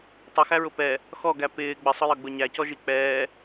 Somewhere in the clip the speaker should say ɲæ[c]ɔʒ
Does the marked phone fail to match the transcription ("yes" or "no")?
no